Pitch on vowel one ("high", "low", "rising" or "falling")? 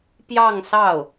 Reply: falling